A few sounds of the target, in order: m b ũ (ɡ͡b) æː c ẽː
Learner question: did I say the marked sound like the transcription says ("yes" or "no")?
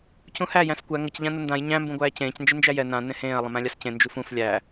no